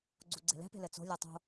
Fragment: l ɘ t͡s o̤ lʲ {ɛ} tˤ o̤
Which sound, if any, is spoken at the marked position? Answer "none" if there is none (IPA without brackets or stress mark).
ɛ